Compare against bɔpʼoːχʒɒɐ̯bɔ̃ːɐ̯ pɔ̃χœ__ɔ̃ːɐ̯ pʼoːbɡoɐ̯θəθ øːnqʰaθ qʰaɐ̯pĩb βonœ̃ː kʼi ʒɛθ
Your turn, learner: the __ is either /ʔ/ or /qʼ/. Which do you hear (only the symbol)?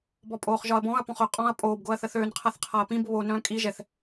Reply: qʼ